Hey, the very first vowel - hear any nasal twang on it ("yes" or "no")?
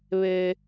no